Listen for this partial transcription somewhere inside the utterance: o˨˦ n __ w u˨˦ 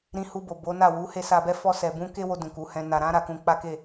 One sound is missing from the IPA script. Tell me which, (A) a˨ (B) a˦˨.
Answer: B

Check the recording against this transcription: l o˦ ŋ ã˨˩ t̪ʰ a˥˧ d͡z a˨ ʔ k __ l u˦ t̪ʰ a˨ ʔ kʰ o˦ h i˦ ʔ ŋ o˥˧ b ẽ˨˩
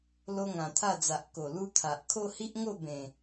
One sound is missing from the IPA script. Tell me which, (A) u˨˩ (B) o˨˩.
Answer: B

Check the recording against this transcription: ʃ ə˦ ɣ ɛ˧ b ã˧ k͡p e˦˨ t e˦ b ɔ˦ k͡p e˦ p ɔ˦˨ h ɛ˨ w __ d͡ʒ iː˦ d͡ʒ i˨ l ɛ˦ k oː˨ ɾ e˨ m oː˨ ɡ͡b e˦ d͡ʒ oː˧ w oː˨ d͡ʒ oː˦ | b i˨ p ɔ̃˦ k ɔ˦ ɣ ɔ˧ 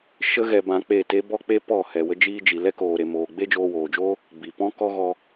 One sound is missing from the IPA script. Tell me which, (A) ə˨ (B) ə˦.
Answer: B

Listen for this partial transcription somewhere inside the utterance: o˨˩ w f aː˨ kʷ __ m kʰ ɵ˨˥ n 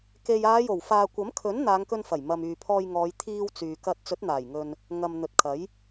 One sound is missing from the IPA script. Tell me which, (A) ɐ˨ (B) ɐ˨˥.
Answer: B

